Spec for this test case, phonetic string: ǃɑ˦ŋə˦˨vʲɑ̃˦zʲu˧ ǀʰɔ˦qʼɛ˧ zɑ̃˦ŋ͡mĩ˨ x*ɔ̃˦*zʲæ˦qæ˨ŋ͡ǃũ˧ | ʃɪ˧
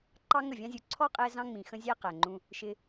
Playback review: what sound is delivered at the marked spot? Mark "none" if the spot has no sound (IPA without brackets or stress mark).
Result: ə̃˦